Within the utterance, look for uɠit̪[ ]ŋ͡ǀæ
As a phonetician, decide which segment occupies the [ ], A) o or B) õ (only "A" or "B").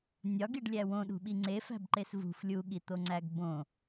A